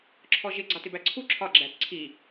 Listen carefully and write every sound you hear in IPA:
ǁʰ ɔ ʒ ɪ ɡ͡ǀ ɑ t ɪ b æ ǀʰ u ǁʰ ɒ ɡ͡ǁ æ t ǀʰ i

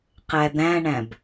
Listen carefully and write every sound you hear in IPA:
q æ d̪ æ̃ ɳ æ̃ b

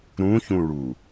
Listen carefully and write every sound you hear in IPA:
ɾ ũ ç ũ ɭ u

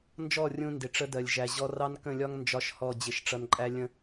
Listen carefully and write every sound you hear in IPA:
n d͡ʒ ɔ˦˨ rʲ ũ˨ n d ɪ˨ ʈ͡ʂ ə˦ d ɜ˨ lʲ ʒ æ˨ ʑ ɔ˦ r ɑ˦ n k ə̃˦˨ lʲ ɒ˦ ŋ n d͡ʒ ɒ˦ ʃ h ɔ˦˨ d͡ʑ ɪ˦ ʃ ʈ͡ʂ ʌ˦ n ǃʼ æ˦ lʲ ə̃˦

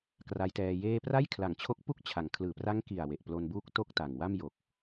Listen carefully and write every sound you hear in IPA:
k r a˦˥ j t ɛː˧ j eː˥˩ p r a˥˩ j kʰ l a˨˩ ŋ t͡ɕʰ o˦˥ k̚ p u˥˩ k̚ t͡ɕʰ a˩˦ ŋ kʰ l ɯː˨˩ p r a˦˥ ŋ k i˨˩ a̯ w e˨˩ ʔ p l o˧ n b uː˥˩ k̚ t o˥˩ k̚ t a˨˩ ŋ w a˥˩ m j o˨˩ k̚

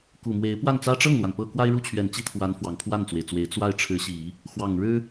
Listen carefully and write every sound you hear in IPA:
k u˨˩ m w e˧˥ ɪ̯ p w a˥˩ n t͡s ä˥ ʈ͡ʂ ɤ˥˩ ŋ l w a˩ n p ɤ˥˩ k w a˥ ɪ̯ ɻ u˥˩ t͡ɕʰ ɥ ɛ˨˩ n t͡ɕ i˥ t̪ʰ w a˧˥ n f w ɑ˨˩ ŋ pʰ w a˥˩ n t͡s w e˩ ɪ̯ t͡s w e˧˥ ɪ̯ t͡s w a˥˩ ɪ̯ ʈ͡ʂʰ ɻ̩˧˥ ɕ i˨˩˦ | x w ɑ˨˩ ŋ ɻ ɻ̩˥

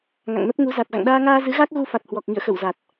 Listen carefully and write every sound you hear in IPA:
ŋ a̰˧˨ ŋ n ə˦˥ p̚ ŋ u˨˦ z a˨˩ t̚ ɣ a̰˧˨ ŋ ɗ aː˧ ŋ aː˧ z ɨ˨˦ ɣ a˦˥ k̚ ɣ u˧ f a˨˩ t̚ h w ɔ˨˩ k̚ ŋ ḭ˧˨ ə̯ x ə˧˩ w z a˨˩ t̚

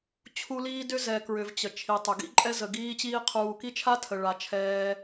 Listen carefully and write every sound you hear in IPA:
t͡ɕʰ u˦ l iː˥ d ʏ˥ z ɛ˨ k ɹ ʏ˨ v t͡ɕ ə˩ t͡ʃʰ i˩ tˤ ʏ˩ ɡ ḭ˥ ǃʼ ɛ˦ z ə˩ ɡ iː˦ t͡ɕ iː˦ qʰ uː˨ k i˥ t͡ʃʰ a˥ tʰ ə˩ ɭ a˩ t͡ʃʰ ɛː˨

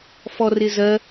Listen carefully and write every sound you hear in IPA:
f ɔ r ɪ z ɜ

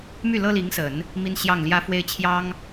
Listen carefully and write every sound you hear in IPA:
m y˥˩ l ɤ˥ l i˧˥ ŋ s ə˨˩˦ n | m i˥ n ɕ j ɑ˥˩ ŋ l j ä˥ f w e˥˩ ɪ̯ t͡ɕʰ j ɑ˥ ŋ

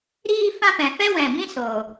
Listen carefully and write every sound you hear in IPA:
ɾ iː˦ f ã˦ p ɛ̃˨ f ɛ˦ w ɛ̃˨ b ĩ˦ s oː˨

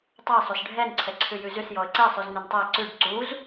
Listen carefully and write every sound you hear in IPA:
tˤ æ sˤ u s ɖʱ ɛ n ǀʰ ɛ ǀʰ ʉ j ʉ z ʉ s j ɔ ə̯ ǀ ɛ sˤ ʉ z n ø n tˤ æ ǀ ʉ ɖ ǀ u z

